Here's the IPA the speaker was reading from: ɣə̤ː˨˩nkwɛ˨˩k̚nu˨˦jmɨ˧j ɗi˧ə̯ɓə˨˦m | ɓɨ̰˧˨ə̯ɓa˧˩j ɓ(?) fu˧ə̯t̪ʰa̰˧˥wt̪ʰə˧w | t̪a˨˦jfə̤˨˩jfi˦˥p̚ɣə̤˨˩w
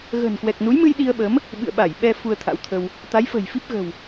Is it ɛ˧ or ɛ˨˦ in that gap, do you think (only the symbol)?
ɛ˧